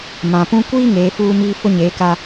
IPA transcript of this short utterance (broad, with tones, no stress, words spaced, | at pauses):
mã˨pũ˦ kʷiː˦ ŋeː˨˦fuː˦ miː˦ fʊ˦ɲeː˨˦ka˦